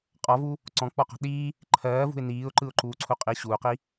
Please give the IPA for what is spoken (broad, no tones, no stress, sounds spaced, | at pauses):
qʼ ɔ v u | ǀ ɔ̃ k͡p ɔ q ɔ̤ ɗ iː | ǃʰ ɜː v ṳ ɪ̯ n iː ʊ̯ ǃ ɯ ʊ̯ ǃ uː ǀʰ u qʼ i ɕ uː q i